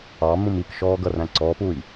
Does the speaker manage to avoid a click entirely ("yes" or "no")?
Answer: no